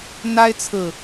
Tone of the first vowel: high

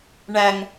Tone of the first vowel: low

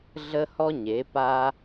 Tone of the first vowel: high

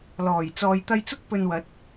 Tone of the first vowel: low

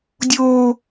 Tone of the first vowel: high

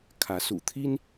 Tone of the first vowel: rising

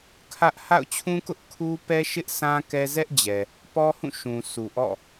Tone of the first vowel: high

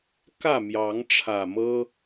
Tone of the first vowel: falling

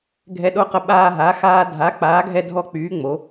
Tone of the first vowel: high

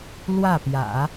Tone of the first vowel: falling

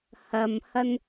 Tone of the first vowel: low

